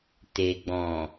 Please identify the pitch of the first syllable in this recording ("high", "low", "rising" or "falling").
low